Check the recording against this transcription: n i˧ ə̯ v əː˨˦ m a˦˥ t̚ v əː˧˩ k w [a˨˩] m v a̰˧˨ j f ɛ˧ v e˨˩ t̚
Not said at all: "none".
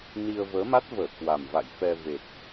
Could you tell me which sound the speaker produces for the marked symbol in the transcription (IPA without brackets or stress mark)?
a˨˩